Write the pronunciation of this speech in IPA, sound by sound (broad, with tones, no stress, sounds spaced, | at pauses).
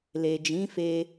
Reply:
l e˨ d͡ʒ ĩ˨˦ f e˧